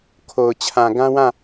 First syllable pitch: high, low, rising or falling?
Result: low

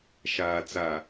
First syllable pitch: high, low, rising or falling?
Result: low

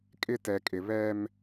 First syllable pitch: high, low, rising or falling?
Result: high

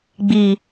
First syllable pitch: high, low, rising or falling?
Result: low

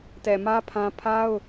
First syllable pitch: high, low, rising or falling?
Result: low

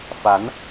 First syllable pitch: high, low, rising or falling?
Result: rising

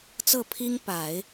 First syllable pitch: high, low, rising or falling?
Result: falling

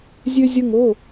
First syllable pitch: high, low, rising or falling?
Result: high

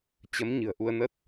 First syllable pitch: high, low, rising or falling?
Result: rising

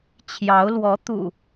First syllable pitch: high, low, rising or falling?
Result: rising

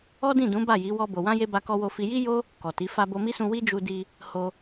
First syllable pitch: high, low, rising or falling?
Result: high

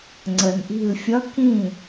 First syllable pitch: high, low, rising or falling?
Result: low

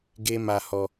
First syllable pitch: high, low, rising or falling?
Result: high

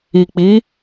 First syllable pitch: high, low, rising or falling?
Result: low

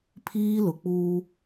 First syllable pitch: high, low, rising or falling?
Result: high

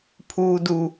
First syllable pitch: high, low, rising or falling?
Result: low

